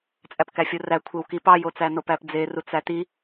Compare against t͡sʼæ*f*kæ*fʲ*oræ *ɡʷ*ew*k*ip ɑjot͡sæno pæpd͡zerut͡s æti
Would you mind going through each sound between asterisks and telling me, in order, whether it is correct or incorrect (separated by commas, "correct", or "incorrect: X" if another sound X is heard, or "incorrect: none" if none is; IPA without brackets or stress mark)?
incorrect: p, correct, incorrect: kʷʰ, correct